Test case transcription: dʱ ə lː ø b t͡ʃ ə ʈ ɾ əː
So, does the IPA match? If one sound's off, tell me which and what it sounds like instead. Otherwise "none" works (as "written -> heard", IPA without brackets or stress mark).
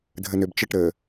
lː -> n